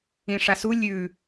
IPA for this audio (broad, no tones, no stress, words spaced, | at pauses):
ĩʂasu lʲʉ